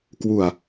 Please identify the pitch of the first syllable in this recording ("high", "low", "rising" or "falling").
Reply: low